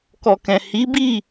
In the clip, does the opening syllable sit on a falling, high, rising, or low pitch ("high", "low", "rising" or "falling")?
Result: low